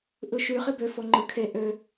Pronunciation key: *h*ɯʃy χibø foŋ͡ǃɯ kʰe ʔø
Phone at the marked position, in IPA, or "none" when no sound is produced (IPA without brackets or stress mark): ʔ